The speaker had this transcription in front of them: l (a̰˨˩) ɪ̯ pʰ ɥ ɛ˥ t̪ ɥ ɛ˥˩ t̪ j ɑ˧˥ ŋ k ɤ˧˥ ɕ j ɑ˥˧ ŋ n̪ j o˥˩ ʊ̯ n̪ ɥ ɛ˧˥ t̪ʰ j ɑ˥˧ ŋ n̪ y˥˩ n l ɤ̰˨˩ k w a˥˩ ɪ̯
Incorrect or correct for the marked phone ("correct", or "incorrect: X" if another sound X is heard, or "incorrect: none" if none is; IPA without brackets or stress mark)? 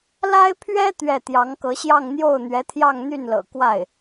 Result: incorrect: a˥